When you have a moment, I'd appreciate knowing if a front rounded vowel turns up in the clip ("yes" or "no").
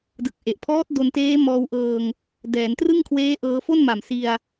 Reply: no